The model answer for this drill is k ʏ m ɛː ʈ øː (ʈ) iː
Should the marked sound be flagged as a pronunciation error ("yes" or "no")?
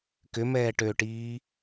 no